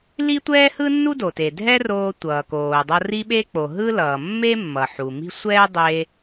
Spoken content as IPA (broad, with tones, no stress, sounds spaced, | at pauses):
l i˥ tʷ ɛː˥ h ɯ˥ nː u˥ d o˩ t e˩ dʱ ɛ˥ r oː˧ tʷ ʌː˩ k oː˩ dˤ ʌ˧ r i˥ ɓ e˥ k͡p o˩ ɦ ɯ˥ l ʌː˩ mː e˥ mː ʌ˩ ħ u˩ m i̤˥ sʷ ɛː˥ dˤ e˧